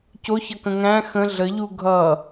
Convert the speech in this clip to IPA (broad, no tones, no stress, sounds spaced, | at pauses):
c o ç ʌ k ə̃ ŋ æ̃ x ə̃ ɮ ə ʎ u ɡʱ ʌ